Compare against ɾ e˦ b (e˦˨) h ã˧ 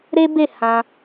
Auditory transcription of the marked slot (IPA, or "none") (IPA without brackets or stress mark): e˦˨